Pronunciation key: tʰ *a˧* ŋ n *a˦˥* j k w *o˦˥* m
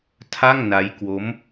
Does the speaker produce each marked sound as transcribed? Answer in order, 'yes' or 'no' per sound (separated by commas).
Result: no, yes, yes